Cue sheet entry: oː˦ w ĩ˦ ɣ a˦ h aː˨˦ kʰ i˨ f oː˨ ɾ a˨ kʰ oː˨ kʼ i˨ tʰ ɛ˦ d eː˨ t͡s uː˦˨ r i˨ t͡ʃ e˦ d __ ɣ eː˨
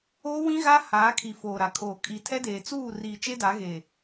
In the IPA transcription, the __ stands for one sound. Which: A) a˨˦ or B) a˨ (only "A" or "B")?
A